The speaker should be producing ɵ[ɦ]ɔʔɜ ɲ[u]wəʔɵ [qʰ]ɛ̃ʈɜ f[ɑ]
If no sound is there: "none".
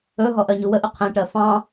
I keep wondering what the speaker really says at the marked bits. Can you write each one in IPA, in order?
ɦ, u, qʰ, ɑ̃

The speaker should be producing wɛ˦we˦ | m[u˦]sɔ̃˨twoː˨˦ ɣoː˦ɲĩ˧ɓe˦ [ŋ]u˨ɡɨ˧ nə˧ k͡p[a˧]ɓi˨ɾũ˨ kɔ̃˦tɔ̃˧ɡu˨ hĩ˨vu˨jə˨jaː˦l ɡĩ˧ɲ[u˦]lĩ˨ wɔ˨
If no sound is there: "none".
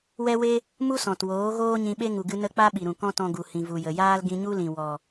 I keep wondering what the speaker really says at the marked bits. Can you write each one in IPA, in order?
u˦, ŋ, a˦, u˦

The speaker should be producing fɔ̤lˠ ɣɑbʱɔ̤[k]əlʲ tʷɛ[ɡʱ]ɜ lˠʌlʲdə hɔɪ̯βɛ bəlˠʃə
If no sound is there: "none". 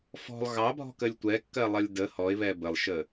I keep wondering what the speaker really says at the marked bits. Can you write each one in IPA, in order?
k, kː

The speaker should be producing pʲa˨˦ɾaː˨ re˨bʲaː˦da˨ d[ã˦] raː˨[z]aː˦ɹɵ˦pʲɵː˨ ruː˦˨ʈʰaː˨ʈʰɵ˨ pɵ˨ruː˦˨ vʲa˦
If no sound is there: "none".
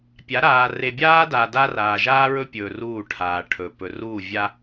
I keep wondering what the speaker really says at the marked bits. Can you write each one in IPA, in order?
a˦, ʒ

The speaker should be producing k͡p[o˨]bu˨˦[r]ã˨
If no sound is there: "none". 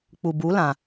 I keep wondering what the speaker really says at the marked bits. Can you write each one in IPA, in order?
u˨, l

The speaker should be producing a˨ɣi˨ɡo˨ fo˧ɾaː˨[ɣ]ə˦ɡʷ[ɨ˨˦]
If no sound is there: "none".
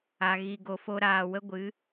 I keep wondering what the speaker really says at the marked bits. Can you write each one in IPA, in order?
w, ɨ˨˦

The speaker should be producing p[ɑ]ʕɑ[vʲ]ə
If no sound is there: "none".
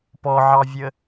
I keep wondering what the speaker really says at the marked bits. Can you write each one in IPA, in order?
ɔ, vʲ

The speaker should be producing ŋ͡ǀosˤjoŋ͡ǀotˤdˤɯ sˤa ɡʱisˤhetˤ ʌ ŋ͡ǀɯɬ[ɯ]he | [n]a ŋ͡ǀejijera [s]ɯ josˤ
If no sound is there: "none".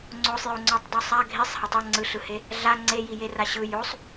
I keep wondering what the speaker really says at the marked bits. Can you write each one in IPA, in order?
ɯ, ɮ, ɕ

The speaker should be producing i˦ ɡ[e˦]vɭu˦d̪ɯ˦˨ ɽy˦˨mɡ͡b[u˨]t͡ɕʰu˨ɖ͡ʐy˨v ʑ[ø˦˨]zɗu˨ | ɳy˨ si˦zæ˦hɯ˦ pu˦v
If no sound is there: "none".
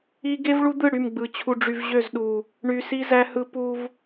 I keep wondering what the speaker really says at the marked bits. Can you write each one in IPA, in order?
e˦, ɯ˨, ø˦˨

